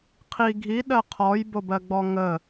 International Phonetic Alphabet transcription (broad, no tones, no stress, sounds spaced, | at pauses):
qʰ i ɡʱ i ɗ ɜ qʰ ɔ j b o b ɜ ɡ͡b ɔ ŋ ə